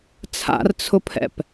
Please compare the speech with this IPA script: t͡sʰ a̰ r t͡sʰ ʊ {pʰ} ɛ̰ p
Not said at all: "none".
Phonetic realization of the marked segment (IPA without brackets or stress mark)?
pʰ